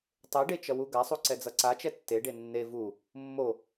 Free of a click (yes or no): no